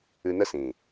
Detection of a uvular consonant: absent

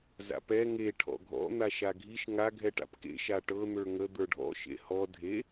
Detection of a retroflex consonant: present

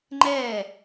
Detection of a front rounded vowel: absent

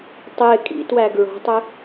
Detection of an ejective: present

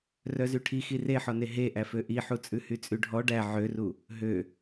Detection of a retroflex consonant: present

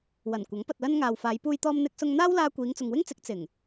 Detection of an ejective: absent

